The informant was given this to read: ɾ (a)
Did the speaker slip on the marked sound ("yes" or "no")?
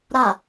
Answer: no